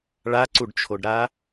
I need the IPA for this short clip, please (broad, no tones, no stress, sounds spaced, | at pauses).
ɭ a ǀ u ɖ t͡ʃʰ o ɖ ɾ a